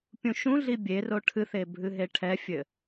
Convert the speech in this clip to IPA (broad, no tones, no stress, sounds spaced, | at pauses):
pʲ ũ ʃ ũ ɮ i bʲ e r o ʈʰ ɨ θ e bʱ ɨ ɦ e ʈʰ ɛ fʲ ɘ